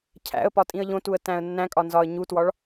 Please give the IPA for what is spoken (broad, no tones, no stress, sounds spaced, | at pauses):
cʰ æ̰ ə̯ p ɒ tʼ ĩ ə̯ ʎ õ t u ə̯ t æ̃ ə̯ nː æ̃ kʼ ɒ n z ɒ ə̯ ɲ u t w ɒ ɭ